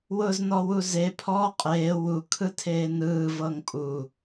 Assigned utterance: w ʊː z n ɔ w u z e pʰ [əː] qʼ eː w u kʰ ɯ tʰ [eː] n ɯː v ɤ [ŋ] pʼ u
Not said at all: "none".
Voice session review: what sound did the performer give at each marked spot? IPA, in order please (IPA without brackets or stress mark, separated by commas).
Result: ɔː, eː, ŋ